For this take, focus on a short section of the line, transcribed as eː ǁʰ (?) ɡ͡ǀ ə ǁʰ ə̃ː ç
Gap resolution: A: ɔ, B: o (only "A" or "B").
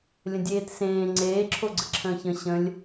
B